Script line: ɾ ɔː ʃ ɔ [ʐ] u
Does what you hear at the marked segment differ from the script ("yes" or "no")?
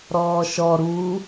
yes